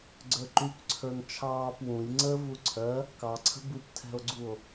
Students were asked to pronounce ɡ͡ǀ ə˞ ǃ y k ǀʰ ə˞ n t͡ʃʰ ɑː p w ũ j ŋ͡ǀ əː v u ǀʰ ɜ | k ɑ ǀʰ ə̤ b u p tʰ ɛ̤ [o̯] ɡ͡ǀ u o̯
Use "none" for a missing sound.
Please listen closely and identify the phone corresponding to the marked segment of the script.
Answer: o̯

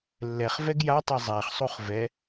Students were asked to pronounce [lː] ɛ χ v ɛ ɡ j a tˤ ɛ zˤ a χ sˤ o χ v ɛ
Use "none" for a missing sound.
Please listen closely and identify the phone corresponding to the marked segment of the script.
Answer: lː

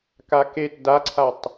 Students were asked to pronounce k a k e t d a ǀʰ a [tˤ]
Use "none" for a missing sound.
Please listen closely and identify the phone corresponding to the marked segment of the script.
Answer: tˤ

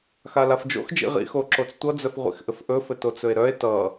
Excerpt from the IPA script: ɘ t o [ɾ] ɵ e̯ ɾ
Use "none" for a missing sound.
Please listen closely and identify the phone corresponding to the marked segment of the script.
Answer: t͡s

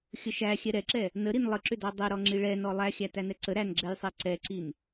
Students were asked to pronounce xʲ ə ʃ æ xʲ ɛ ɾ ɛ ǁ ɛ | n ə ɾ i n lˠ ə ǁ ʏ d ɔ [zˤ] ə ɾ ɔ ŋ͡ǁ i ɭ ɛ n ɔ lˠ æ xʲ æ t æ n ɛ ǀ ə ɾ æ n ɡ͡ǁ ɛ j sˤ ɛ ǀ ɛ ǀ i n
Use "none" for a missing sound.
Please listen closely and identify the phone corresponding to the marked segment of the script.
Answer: dˤ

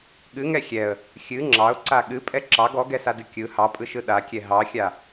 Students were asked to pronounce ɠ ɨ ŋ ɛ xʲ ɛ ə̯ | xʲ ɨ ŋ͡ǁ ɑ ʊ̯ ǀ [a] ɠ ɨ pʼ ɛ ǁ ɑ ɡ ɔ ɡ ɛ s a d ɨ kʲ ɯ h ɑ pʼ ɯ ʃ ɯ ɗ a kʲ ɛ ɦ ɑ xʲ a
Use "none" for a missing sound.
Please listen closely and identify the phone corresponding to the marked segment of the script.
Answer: a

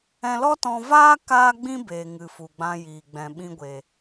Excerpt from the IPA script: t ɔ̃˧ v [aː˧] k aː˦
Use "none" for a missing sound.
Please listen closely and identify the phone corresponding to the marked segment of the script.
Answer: aː˦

